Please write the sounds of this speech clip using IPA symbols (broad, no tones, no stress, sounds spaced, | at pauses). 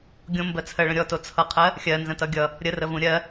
ɡʲ õ m b ɜ t͡sʰ ɜ ɭ ə̃ ɾʲ ɔ t o t͡sʰ ʌ qʰ ɜ | xʲ ɜ n z ə̃ t ʌ ɡʲ ʌ | ɾʲ ə r ə v ũ ɾʲ ɜ